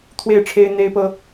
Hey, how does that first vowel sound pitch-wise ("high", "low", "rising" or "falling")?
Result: falling